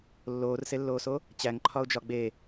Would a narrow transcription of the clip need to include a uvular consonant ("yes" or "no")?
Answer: no